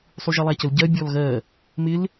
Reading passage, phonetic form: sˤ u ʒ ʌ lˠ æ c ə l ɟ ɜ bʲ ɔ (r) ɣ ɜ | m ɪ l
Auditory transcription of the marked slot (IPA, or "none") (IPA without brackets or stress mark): l